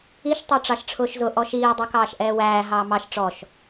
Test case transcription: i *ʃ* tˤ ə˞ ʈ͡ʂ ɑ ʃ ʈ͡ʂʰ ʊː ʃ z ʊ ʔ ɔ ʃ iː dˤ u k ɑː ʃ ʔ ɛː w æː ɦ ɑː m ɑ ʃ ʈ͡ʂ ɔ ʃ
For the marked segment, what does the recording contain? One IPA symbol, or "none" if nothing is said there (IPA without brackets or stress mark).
ʃ